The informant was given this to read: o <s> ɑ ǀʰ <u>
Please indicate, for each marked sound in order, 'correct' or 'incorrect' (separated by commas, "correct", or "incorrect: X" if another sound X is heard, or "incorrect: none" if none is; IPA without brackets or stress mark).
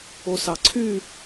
correct, incorrect: y